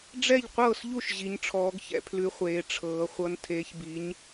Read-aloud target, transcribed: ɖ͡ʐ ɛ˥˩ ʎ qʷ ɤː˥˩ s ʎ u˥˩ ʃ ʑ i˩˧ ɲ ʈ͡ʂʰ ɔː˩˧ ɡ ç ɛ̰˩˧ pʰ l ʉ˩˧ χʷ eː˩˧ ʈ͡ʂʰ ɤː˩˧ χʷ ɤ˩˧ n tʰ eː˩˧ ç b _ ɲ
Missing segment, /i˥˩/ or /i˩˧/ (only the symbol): i˩˧